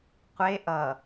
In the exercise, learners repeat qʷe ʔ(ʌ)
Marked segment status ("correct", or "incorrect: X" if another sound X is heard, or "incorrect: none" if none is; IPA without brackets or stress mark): correct